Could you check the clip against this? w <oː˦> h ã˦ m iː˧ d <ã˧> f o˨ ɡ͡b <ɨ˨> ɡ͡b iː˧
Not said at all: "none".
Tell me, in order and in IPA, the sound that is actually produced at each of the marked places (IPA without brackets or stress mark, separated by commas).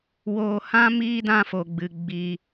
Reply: oː˧, ã˧, ɨ˨